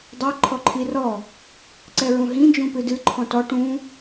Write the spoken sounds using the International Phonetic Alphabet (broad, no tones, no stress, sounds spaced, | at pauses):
dˤ ɛ ǃʰ ɔ ǃʰ i r ɔ | ǀ ɛ ɹ ũ ɦ ĩ d͡ʒ ũ p ɨ d ɨ ǃʰ ɔ̃ t ɔ ʈ ũ